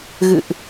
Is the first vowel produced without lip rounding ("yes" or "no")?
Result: yes